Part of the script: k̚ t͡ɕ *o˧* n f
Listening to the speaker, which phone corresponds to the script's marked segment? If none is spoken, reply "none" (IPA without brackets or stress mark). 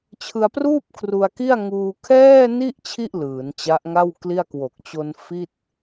o˧